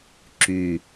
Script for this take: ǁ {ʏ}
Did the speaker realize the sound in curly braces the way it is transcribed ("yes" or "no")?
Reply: no